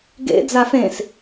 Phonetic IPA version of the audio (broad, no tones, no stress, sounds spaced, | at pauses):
ɡ ḛ d͡z a f ẽ s